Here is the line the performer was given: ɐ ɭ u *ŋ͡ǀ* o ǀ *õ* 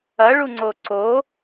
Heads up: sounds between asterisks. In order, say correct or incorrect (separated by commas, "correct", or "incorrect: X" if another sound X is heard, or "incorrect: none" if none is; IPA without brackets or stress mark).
correct, incorrect: o